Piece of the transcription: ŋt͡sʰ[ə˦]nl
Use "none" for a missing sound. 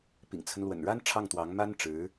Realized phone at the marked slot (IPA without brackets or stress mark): ə˦